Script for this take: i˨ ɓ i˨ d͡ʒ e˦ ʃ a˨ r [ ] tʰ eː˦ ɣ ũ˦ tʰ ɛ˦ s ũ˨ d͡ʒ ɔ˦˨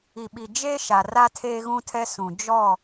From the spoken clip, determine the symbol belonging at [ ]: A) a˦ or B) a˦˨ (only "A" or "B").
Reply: A